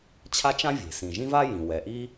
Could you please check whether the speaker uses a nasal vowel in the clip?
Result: yes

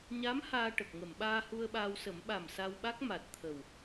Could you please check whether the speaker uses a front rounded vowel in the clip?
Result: no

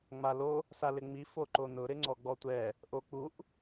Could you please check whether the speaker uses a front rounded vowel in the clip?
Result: no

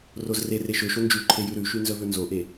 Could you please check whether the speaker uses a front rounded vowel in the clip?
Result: yes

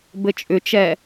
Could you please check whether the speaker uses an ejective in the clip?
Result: yes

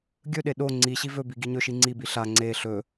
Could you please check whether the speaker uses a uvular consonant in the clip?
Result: no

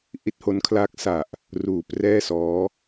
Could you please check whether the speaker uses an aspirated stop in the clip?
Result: yes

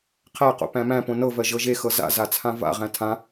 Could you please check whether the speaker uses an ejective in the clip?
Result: no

